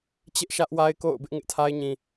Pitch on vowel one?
high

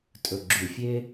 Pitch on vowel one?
low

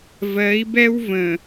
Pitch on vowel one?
rising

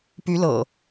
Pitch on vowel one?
rising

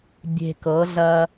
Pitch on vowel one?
low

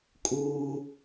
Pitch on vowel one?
low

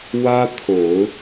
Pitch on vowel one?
high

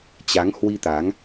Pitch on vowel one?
rising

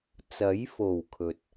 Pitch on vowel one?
rising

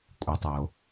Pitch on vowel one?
low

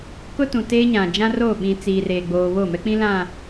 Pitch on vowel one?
high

